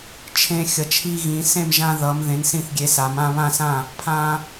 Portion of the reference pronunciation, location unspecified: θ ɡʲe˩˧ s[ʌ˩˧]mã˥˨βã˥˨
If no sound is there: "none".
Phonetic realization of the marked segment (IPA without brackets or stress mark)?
a˩˧